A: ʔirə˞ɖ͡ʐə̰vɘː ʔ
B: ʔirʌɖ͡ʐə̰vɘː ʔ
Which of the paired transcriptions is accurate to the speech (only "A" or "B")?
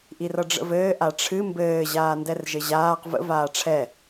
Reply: B